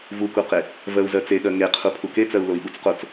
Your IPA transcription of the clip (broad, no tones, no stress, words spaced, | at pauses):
vukuqe | vɜu̯zɜt͡seɠɜ ŋeqʰu pʰuket͡sɜu̯ loi̯ɓut͡sqot͡s